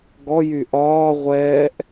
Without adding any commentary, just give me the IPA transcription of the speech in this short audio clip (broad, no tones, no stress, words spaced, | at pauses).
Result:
ɡɔjy ʔɒː ʁʷɛːʔ